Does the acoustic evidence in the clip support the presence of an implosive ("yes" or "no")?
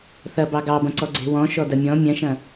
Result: no